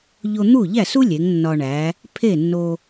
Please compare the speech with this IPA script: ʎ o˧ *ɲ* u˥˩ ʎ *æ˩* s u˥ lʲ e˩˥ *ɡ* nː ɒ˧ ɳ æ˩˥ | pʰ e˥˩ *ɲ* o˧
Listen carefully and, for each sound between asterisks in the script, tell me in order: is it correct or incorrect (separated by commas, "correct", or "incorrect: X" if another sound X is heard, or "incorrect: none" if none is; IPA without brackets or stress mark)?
incorrect: n̪, incorrect: æ˥˩, incorrect: ŋ, incorrect: nː